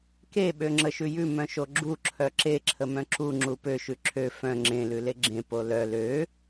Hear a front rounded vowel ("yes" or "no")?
yes